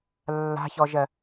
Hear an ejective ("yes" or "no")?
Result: no